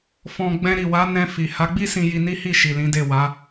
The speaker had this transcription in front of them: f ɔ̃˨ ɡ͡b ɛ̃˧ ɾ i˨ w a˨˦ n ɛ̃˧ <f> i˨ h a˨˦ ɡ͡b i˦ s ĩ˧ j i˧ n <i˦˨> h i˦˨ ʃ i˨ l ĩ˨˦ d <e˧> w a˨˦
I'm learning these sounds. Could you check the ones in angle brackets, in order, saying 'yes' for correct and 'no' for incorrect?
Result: yes, no, no

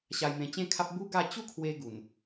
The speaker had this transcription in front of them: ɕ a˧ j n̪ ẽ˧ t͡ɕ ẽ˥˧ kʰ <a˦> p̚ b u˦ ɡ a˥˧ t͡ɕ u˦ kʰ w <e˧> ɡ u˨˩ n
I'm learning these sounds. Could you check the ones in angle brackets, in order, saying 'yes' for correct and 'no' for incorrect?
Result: yes, yes

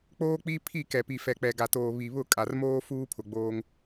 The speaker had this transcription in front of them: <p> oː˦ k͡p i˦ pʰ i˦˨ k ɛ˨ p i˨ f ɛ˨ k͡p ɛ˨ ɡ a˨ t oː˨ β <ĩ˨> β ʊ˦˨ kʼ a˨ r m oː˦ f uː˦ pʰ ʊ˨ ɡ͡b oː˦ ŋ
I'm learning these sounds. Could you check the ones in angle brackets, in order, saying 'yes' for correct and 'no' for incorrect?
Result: no, no

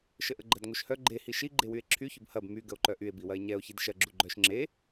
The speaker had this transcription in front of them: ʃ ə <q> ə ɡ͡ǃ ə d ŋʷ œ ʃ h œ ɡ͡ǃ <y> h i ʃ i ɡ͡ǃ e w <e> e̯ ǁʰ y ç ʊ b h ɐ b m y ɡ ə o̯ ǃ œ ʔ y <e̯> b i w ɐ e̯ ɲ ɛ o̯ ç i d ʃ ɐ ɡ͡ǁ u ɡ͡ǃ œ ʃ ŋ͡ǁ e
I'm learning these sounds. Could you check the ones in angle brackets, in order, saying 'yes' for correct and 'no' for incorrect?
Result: no, no, no, yes

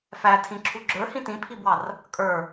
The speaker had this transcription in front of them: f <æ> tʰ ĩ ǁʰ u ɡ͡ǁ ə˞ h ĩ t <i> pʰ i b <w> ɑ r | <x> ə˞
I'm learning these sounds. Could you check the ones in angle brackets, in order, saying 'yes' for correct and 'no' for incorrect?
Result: yes, no, yes, no

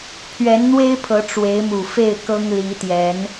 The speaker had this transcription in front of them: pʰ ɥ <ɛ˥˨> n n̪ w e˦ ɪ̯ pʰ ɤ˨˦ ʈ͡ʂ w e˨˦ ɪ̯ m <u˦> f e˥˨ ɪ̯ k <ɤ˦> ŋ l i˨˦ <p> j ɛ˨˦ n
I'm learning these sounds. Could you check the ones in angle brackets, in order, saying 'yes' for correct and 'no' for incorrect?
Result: no, no, yes, no

